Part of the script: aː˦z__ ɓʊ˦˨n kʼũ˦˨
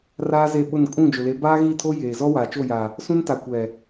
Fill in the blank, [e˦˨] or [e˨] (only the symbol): e˦˨